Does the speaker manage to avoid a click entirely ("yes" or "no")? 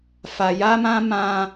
yes